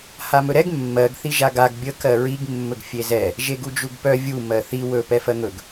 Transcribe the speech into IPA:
hamɵɾɛɡ mːɜɡ θiʒaɡaɡ bʲə kɜɹiɡ mːɵɡfʲezɛ | ʒeɡud͡ʒuɡpœ vʲu mɜθi wɵ pɛfɜŋɵɡ

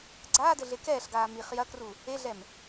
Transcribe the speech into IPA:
ɡ͡ǀaːdɘ ɮekɛːɬɡaː miχ jɐkru | eɮɛm

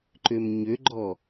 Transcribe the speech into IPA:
ǃʏmɲʏɡ͡ǃɔ

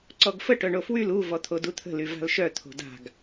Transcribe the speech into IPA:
ǀɔɡfə ʈœɳofwyl u vɔt̪ʰodut̪ʰə̤ lyva̤lʃœ t̪ʰo̤da̤ɡ

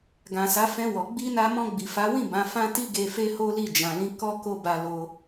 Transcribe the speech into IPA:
ɡã˨sa˨˦ fɛ̃˧wɔ˨ ɡ͡bi˧na˧mɔ̃˧ ɡ͡bi˨ fa˨˦wĩ˦˨ bã˨˦ fã˦ti˦ɡe˧ fe˦ho˦li˦˨ d͡ʒã˧lĩ˦ kɔ˦ko˦ba˧ lo˧

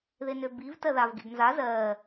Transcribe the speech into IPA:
ðɪnøbiv tɜðavɡḛɡnza zɜ

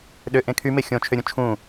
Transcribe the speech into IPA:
ɗø ʔẽkʰy mexʲõ t͡ʃʰøɾʲũt͡ʃʰũ

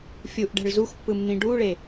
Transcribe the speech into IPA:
fʲuʔɖɛ̤ɭ zuxpːɯmːĩ ɖuɭe

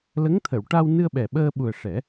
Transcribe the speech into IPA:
lə˧˥ŋt̪ʰə˨˩˨w ʈa˧wnɨ˧ə̯ɓɛ˨˩ɓəː˧ ɓu˨˩ə̯ʂɛ˨˩˦

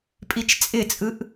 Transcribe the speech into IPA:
pʼit͡ʃt͡sʼɪt͡sʼɯʔ

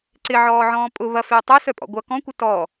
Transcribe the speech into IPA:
ǀɪʕɔːʕɔ̃ː pʼʊ βɐfɪː tˤœsœpʼɔ̰ ɡʷɐ kɔ̃kʷə tɔ

